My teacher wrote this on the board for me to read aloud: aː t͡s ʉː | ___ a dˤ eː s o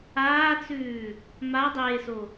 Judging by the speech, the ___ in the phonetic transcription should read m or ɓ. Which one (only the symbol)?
m